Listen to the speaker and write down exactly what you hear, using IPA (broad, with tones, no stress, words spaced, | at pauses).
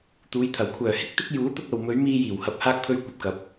t̪uː˨˧jt̪ʰɐ˨˩w kʷʰœː˨˩hɪ˥k̚ t̪ɪ˥k̚ juː˨˥t̪ʊ˧k̚ ɐ˨w mɵ˨˧ɥ miː˧jiː˨˩whɐ˨p̚ haː˧k̚pʰɵ˧ɥ kʷɐ˧p̚kɐ˨˥p̚